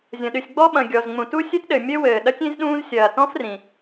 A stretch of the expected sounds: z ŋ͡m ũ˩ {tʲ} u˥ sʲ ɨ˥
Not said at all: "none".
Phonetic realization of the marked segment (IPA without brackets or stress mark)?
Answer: t